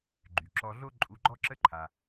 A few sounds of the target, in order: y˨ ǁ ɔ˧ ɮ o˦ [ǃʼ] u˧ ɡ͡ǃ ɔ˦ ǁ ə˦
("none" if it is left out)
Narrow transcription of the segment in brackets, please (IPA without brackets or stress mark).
ǃʼ